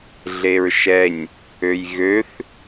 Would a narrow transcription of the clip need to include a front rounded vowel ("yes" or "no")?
yes